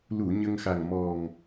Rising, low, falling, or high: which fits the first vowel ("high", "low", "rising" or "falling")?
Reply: low